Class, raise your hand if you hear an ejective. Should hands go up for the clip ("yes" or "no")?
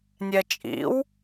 yes